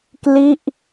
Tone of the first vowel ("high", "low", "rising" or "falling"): falling